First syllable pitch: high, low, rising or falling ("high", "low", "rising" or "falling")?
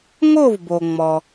falling